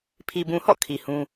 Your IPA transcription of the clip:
pʰ i˨ b ũ˨ h ɔ̰˦˨ kʰ i˨ h ũ˦

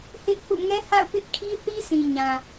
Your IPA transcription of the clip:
h ɪ˦ ʔ h ṵ˦˨ ŋ ɛ˦ h a̰˦˨ ʊ̯ p ɪ˦ ʔ kʰ i˦ θ i˦ s ĩ˨ ɲ ã˨

